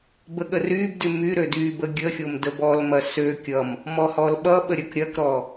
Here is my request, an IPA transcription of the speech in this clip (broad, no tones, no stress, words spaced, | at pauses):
bəɠərybdy myɾø dybə ɡʲəxʲom dəbɔlmɐ sø kʲʌm | mɔhɔlɓʌɓə ɾʲɐkɾʲɐkɾɔ